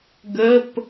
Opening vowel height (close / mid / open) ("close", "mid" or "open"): mid